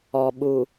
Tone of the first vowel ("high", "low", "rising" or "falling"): low